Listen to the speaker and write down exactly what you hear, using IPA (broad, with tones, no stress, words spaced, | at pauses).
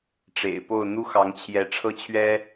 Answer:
ʈ͡ʂḛ˨˩ɪ̯po˥˨ʊ̯ n̪u˦xɑ˨˦ŋt͡ɕʰjɛ˨˦ ʈ͡ʂʰɤ˥˨t͡ɕʰɥɛ˦